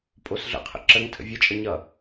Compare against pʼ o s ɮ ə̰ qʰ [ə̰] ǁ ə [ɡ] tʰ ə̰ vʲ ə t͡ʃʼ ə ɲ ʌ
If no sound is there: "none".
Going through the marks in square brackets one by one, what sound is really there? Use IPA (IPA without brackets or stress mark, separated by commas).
ə̰, ŋ